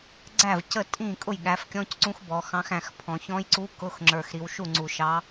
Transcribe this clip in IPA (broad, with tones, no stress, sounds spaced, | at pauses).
ɡ͡ǀ æ˥˩ v c ə˥˩ tʼ ĩ˥˩ kʼ ʊ˥˩ j ɠ æ˩˧ f kʲ ɔ̃˧˥˧ c ǀ ũ˧˥ x b ɔ˩˧ x ɑ̃˧˥ x æ̃˩˧ x pʰ ɔ̃˩˧ ç ɔ̃˧˥ j ǀ u˧˥ k ʊ˧˥˧ x ŋ͡ǁ ə˞˨˩ x ɾ i˩˧ w ʃ u˥˩ ŋ͡ǀ u˨˩ ʃ ɑ˧˥